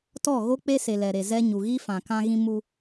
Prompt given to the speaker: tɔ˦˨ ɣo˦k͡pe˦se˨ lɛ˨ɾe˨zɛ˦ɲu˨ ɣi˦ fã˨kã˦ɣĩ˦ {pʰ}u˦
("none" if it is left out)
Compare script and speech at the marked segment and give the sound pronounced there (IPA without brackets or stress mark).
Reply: m